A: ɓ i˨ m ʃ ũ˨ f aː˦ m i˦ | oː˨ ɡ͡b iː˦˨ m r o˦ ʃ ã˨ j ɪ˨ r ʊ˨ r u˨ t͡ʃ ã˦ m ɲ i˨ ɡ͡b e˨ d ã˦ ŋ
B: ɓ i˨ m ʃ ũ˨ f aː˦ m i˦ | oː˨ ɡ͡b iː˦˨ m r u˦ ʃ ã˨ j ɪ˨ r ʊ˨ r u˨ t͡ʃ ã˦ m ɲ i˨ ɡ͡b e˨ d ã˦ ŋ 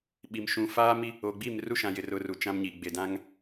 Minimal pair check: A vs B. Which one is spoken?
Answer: B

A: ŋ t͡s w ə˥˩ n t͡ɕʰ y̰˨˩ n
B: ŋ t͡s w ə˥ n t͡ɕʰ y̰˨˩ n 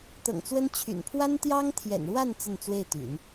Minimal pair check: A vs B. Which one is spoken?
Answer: B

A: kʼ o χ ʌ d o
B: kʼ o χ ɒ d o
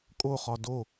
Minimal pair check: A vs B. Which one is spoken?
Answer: B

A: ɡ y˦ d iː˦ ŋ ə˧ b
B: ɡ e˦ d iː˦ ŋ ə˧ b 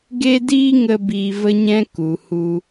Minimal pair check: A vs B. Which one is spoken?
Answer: B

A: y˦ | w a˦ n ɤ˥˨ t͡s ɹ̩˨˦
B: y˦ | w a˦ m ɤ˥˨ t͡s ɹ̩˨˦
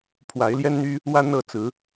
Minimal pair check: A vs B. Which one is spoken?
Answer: A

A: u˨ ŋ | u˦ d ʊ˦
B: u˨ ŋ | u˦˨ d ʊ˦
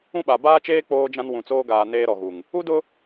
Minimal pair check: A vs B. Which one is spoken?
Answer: A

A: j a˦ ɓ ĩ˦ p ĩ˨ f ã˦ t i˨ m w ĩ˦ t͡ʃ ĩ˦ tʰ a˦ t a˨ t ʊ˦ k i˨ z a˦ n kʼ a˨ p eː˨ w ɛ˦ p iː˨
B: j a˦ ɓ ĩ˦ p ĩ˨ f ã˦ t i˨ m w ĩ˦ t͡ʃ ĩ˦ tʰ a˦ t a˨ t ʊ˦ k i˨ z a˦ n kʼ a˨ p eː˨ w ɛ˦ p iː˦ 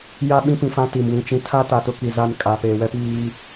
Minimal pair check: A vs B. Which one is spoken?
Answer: B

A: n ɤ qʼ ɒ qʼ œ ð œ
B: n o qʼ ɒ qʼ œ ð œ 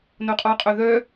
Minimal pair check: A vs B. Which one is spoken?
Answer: B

